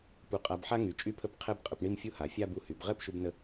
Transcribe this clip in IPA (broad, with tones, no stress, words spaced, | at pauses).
pu˧˩qʼa˧bħa˥ ŋy˩˧t͡ʃʼy˥˧pʰə˥˧p qʰɛ˥b qʼə˧pɳi˥˧mfʲu˥ ha˩˧fʲa˥˧bu˧ hy˩˧b ʁɛ˥˧pʃu˧bnə˧